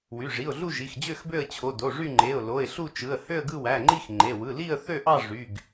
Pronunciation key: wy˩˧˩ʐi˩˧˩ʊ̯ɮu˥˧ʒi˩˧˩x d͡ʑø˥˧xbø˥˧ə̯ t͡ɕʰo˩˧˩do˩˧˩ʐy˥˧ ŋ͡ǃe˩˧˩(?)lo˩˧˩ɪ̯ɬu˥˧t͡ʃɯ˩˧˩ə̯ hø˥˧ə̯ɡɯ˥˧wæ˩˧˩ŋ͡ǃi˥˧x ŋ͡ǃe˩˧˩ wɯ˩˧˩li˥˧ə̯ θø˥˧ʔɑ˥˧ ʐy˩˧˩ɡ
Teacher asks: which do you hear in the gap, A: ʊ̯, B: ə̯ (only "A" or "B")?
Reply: A